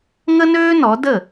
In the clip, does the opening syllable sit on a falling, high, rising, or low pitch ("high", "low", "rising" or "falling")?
high